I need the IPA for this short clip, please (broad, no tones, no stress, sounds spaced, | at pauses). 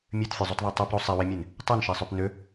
mʲ ø t fʲ u zˤ o t ðˤ e tˤ ø p ɾ o sˤ e w e mʲ e n | tˤ o n ʃ e sˤ ø p n ø